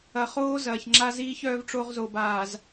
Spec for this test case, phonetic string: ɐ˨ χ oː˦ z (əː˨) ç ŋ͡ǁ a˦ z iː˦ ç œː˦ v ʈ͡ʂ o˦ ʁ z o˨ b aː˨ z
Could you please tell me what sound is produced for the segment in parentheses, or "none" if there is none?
ɐː˨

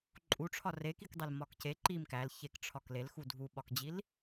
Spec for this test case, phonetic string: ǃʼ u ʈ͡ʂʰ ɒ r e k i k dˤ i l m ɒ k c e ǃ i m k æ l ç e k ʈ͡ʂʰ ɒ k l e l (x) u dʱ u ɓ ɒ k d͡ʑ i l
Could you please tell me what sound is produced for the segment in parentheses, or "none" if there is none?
x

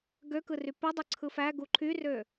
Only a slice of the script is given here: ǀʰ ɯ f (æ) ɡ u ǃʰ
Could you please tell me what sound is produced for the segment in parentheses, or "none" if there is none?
æ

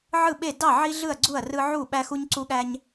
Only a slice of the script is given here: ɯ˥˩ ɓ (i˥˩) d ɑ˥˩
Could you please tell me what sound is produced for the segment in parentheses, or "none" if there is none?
e˥˩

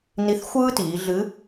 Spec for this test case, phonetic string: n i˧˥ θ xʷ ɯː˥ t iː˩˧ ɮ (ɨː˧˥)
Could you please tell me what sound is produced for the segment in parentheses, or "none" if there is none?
ɨ˧˥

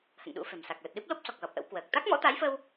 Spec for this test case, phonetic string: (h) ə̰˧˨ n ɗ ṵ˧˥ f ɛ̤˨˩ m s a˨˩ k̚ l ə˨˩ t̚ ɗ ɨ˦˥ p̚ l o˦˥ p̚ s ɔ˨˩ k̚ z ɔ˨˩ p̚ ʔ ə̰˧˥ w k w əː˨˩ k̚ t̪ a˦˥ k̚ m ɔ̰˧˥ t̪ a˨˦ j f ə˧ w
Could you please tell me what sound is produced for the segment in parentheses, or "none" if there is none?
h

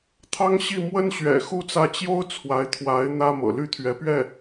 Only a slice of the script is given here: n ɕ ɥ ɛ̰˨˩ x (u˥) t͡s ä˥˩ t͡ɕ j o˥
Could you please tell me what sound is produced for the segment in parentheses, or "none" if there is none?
u˥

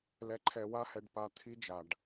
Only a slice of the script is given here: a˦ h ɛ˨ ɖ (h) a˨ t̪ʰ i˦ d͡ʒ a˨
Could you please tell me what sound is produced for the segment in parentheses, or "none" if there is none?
p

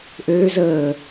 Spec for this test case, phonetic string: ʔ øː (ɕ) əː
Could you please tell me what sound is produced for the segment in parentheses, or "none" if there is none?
z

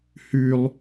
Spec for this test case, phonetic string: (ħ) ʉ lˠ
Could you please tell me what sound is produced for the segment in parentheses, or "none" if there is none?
h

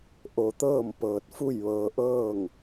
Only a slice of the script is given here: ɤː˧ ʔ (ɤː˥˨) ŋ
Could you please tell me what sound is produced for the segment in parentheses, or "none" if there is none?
ɤː˥˨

